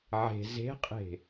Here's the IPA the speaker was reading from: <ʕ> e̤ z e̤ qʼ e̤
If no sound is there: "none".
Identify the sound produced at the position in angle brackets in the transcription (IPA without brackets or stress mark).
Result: ʕ